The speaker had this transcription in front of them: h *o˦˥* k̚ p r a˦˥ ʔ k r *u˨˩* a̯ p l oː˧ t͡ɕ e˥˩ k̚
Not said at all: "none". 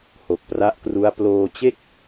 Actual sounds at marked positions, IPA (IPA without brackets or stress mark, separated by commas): o˨˩, u˦˥